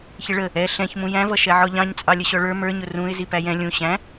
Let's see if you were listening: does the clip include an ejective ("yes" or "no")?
yes